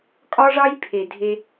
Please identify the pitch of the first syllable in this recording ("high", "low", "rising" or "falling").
high